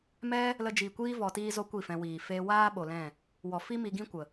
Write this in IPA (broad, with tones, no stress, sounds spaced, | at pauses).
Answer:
m ɛ˦ | l ə˧ d͡ʒ i˨ kʷ iː˦ v ɔ˧ t iː˦ z o˦ kʷ i˦˨ f ɛ̃˧ w iː˨ f eː˦ w aː˦ ɓ o˨ l ɛ̃˦˨ | w ɔ˨ f i˦ m i˧ ɡ ĩ˦ kʷ ə˨